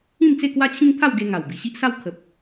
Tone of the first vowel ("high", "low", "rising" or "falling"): falling